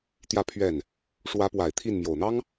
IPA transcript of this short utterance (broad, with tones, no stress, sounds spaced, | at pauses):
t̪ j ä˥˧ pʰ ɥ ɛ˥˩ n | ʂ w ä˧˥ p w a˨˩ ɪ̯ t̪ʰ i˥˩ n m j o˨˩ ʊ̯ n̪ ɑ˥ ŋ